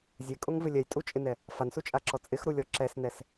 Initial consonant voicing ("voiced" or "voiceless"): voiced